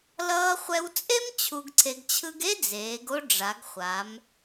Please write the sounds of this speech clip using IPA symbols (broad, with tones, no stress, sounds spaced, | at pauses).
l ʌː˧ χʷ ɛ˧ w t͡sʼ e˥ m t͡ɕʰ u˧ ɡ ǀʰ e˧ ɡ t͡ɕʰ ɯ˥ ɡ e˥ d͡z eː˩˧ ɡ o˧ ɖ͡ʐ a˩˧ ɡ χʷ a˩˧ m